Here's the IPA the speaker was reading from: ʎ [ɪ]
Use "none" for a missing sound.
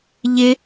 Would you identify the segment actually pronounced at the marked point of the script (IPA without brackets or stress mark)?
ɪ